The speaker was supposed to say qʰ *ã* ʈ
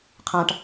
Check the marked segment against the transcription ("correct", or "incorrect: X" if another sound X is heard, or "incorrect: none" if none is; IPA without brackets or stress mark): correct